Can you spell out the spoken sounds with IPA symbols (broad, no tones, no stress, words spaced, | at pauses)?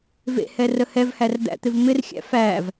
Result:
vḛhɛ rəhɛvhær d̪æ̰t̪ɪvmɪrxʲæ̰ fæv